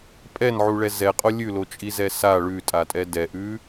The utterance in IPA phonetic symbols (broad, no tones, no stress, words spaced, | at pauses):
pʼɛnʕuɭɛ zɛqʼo lʲʉlot͡ʃʼizɛ sa ɭʉtʼatʼɛ dɛʔʉ